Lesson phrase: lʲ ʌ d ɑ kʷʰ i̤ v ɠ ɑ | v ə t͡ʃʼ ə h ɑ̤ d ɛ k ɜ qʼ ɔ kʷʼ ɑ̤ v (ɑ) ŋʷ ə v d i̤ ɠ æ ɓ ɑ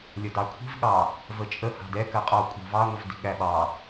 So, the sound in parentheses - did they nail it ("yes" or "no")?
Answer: yes